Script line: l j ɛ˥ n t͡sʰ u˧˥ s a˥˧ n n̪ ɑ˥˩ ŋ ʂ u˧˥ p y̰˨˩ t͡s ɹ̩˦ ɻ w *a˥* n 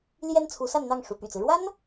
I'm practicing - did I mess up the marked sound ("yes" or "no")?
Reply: no